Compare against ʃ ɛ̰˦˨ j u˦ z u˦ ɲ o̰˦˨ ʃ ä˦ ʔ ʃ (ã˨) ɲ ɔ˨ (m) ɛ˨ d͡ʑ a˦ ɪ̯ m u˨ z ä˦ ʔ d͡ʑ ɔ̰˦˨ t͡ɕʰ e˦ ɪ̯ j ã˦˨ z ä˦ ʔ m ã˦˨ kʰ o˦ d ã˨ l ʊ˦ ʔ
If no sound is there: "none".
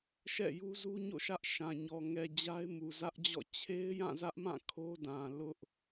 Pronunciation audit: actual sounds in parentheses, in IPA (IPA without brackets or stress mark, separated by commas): ã˨, ŋ